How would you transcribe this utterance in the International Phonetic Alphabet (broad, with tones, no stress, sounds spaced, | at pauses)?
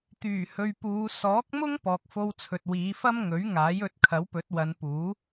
t̪ yː˨˩ h ɵ˨ ɥ p uː˨˧ s ɔː˨˥ k̚ m ʊ˥ ŋ p ɔː˨ k̚ f o˧ w t͡sʰ ɵ˨ t̚ w iː˨˧ f ɐ˥ m ŋ ɵ˨˥ ɥ ŋ aː˨˥ j ɵ˨˥ t̚ kʰ ɐ˨˥ w p ɵ˨˥ t̚ w ɐ˨˧ n p uː˨˥